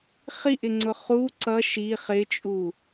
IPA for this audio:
χ i ʔ ɪ ŋ͡ǀ ʊ χ u ǀ ʌ ʃ i χ ɪ t͡ʃʼ u

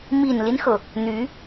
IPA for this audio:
m i˨˩ n l i˦ n x ɤ˩ | n̪ y˧˥

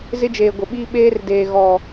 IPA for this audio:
z ɪ˦ d͡ʒ eː˨ ɡʷ ɪ˨ ɓ iː˦ ɓ eː˦ r d eː˨ ɣ ɔ˨

